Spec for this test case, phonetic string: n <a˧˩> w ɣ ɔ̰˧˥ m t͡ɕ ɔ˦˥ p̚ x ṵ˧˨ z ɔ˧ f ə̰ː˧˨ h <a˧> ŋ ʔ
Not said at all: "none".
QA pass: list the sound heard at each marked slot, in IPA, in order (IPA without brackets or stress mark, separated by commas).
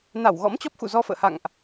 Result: a˧˩, a̰˧˨